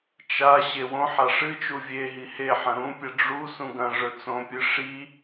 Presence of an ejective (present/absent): absent